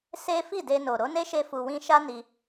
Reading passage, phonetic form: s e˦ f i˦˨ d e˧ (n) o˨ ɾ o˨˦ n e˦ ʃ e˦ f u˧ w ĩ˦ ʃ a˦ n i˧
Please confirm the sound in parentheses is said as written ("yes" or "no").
yes